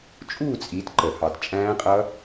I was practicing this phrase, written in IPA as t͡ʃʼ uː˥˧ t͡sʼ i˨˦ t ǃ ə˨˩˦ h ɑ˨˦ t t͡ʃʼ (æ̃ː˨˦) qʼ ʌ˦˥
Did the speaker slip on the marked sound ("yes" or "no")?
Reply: yes